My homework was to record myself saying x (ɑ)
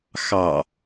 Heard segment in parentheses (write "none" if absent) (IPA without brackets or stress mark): ɑ